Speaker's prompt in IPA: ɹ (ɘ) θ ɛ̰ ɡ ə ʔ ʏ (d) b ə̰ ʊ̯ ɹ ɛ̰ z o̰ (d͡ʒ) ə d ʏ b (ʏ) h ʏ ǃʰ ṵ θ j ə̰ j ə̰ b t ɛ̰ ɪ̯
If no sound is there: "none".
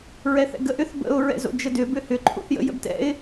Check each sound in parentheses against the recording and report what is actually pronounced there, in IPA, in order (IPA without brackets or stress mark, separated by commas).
ɛ, θ, d͡ʒ, ʏ